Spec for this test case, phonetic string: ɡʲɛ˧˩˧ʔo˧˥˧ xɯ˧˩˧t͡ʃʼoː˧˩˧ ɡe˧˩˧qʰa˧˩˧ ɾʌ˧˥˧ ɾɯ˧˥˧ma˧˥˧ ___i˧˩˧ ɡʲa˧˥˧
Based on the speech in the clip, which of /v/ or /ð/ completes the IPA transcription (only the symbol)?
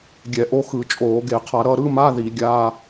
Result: ð